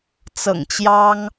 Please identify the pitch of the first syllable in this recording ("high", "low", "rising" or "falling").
low